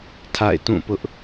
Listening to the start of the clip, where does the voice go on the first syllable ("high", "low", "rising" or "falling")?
falling